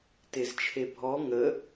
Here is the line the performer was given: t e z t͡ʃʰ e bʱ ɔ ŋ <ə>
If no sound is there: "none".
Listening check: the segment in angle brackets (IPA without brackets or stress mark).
ə